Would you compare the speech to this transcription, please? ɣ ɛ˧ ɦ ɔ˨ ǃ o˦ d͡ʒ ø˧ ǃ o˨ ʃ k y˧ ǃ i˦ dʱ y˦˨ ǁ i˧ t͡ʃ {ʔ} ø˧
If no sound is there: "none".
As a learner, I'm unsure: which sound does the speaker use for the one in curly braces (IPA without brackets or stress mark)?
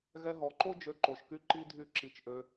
ʔ